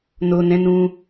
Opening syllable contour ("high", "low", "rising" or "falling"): low